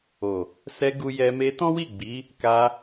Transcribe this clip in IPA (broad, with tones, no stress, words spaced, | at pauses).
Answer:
o˨ | sɛ˧ ɡu˧jɛ˧ me˧tɔ̃˦wi˦˨ɡ͡bi˨˦ | ka˧